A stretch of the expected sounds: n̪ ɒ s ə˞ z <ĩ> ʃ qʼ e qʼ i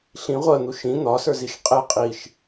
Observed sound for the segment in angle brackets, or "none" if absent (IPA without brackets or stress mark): i